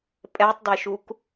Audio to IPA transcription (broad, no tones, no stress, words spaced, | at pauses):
pʼɛtˤdeʃuk